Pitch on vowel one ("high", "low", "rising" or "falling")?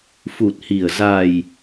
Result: low